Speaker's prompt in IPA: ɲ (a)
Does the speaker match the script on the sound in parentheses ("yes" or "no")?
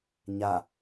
yes